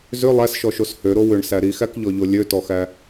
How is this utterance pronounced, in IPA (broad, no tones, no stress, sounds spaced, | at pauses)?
z ʏ lˠ æ s ʃ ɔ ʃ o s h ø ɾ o w ʏ ɳ s æ ɾ i x æ k ʎ ɔ ʎ o lʲ ø t ɔ x æ